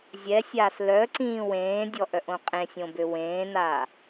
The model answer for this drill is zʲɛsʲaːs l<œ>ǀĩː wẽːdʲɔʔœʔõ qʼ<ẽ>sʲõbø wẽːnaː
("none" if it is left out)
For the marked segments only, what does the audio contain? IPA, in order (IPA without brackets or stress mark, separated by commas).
œ, ẽ